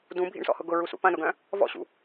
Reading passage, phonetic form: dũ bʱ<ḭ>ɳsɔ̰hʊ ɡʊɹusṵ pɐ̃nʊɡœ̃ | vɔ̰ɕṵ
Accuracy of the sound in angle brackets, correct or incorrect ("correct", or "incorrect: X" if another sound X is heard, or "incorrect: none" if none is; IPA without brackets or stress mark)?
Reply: correct